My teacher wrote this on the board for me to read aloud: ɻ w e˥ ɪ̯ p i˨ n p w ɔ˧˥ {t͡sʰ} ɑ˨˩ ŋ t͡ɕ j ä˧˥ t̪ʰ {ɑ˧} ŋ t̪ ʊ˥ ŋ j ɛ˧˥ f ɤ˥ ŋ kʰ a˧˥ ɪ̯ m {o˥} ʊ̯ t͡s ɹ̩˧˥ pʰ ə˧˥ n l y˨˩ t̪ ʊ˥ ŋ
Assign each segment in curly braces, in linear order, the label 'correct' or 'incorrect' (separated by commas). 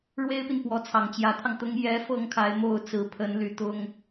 correct, correct, incorrect